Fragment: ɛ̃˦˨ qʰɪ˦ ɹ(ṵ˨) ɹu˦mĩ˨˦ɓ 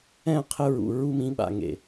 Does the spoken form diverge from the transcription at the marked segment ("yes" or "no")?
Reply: no